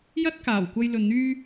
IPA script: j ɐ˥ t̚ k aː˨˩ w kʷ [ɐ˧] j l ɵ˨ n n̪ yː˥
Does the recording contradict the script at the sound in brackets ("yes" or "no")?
no